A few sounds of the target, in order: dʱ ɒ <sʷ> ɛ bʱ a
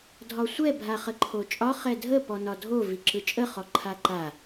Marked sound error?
no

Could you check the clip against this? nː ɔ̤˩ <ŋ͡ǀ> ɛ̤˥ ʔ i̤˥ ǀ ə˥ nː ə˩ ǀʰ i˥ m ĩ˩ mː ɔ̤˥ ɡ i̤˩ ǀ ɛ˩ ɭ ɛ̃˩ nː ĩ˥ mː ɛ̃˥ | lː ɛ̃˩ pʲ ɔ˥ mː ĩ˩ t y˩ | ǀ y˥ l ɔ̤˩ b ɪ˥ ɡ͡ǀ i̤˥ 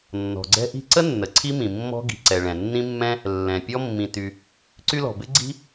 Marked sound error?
yes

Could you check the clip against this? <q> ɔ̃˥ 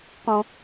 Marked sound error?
no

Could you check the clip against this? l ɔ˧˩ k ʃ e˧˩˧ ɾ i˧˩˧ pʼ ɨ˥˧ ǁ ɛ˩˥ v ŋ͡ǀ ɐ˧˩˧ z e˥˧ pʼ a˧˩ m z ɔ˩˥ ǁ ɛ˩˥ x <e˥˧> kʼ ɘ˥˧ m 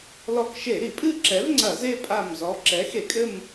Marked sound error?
yes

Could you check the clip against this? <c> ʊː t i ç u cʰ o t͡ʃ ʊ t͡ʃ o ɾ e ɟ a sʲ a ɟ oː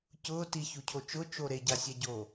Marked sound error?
no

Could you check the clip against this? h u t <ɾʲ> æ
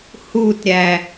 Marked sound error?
no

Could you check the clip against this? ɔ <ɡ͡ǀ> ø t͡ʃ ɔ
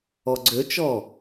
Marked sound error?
no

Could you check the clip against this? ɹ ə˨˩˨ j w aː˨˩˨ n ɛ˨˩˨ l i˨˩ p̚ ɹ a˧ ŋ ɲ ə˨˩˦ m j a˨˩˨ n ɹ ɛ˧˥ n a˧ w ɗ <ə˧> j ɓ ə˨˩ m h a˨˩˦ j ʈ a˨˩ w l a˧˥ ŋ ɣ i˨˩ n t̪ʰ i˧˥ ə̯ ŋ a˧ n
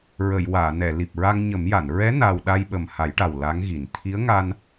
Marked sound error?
yes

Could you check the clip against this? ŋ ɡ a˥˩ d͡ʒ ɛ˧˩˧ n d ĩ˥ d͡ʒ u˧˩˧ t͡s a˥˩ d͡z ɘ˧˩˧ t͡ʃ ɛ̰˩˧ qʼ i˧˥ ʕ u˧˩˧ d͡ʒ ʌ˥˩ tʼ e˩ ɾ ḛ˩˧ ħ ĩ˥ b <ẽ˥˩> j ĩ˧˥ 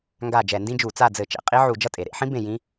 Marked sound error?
no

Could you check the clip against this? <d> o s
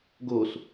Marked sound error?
yes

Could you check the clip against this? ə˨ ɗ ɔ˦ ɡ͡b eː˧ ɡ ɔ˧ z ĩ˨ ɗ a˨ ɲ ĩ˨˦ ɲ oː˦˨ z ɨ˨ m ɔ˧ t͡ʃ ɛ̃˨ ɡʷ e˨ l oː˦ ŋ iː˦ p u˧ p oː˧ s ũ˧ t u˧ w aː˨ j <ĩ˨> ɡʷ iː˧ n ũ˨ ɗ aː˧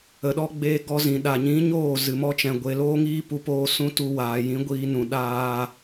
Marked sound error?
yes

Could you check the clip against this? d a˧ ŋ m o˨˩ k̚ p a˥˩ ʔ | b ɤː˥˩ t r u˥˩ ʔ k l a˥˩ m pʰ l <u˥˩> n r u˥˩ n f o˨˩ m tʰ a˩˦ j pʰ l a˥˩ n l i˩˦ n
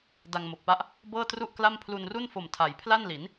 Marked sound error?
yes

